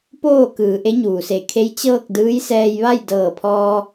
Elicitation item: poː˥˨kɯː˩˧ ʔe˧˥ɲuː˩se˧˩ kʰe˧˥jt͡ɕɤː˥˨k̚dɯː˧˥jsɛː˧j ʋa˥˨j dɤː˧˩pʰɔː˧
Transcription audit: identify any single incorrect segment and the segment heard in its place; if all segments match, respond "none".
none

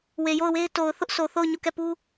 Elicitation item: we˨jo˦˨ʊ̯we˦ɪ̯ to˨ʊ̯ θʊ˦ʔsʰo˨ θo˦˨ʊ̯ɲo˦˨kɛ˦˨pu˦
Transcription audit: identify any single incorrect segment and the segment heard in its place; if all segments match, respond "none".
none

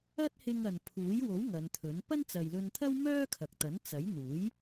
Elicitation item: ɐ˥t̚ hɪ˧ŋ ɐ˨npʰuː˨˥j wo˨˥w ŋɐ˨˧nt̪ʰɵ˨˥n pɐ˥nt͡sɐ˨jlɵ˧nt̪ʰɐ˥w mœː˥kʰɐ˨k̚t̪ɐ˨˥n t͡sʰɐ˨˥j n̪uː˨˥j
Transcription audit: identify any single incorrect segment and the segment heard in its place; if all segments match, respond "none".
t͡sʰ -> t͡s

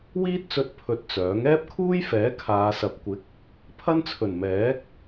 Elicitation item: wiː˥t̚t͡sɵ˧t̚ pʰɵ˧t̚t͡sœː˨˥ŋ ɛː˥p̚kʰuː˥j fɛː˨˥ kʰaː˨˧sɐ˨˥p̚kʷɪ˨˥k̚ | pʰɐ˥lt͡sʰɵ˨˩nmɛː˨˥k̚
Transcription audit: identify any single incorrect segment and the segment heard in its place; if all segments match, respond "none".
l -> n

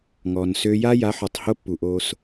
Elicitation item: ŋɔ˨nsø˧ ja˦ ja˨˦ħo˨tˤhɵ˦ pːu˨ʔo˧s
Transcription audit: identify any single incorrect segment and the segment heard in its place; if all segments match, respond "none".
ɵ˦ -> o˦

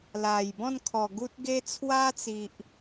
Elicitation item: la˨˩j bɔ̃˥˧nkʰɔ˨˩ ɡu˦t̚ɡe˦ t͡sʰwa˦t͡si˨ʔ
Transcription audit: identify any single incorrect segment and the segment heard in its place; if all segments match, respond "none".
none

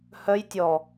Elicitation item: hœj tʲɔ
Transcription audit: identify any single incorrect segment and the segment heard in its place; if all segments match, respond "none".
none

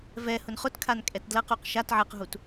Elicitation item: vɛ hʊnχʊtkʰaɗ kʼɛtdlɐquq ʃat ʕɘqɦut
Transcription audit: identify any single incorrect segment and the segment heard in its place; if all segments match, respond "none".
ɗ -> n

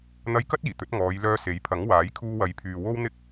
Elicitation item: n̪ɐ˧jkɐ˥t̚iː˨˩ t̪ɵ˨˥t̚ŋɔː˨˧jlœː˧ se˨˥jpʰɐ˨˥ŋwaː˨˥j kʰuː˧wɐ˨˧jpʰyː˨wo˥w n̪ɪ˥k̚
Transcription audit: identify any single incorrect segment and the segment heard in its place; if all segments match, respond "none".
none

